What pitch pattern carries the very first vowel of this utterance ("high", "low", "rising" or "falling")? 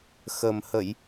low